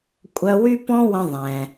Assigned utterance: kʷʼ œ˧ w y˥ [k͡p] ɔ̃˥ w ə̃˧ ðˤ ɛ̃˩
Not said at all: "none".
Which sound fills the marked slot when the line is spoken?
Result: p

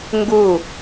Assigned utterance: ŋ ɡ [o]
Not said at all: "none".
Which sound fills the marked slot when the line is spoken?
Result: u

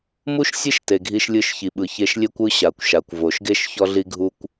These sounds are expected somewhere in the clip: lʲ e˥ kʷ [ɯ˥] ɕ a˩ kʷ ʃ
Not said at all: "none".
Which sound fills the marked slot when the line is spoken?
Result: ɯ˥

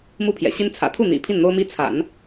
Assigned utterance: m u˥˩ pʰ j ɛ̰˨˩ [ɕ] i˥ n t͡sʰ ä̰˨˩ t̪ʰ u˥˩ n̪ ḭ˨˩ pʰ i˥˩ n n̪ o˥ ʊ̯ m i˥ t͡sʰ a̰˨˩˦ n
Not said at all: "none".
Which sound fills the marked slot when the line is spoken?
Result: ɕ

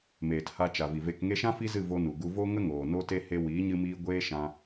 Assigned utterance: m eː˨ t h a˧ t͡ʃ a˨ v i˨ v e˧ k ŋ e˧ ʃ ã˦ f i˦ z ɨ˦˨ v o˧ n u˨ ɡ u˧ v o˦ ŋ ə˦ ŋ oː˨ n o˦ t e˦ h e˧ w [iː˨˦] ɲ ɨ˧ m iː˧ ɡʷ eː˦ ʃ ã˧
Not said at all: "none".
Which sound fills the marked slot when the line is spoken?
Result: iː˨˦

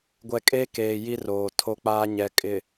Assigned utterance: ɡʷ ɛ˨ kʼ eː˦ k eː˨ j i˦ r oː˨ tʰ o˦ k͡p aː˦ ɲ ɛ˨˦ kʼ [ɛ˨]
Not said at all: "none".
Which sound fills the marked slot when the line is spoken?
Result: ɪ˨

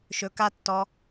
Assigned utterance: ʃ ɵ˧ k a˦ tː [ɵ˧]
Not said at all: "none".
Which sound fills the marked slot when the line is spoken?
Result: ɔ˧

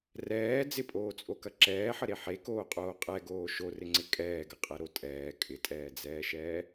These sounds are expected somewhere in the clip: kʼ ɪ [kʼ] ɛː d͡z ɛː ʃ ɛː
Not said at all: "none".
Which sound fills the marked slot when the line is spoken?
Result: tʼ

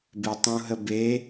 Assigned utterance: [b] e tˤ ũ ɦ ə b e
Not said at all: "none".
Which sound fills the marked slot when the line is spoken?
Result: b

